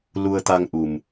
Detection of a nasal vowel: absent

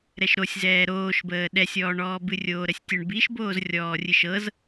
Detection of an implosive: present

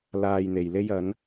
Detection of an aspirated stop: absent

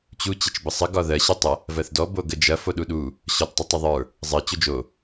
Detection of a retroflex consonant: absent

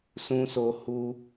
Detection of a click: absent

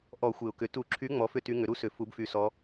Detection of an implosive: absent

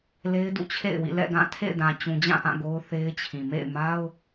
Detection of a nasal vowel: present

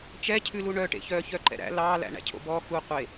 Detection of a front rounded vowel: present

